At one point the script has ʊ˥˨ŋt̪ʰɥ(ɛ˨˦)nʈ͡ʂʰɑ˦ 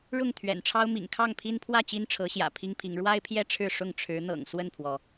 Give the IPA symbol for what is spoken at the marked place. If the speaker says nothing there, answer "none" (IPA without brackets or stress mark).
ɛ̰˨˩